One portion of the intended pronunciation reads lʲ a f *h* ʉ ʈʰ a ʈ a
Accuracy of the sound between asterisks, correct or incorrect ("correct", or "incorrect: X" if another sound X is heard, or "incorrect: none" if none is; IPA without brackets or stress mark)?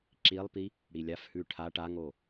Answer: correct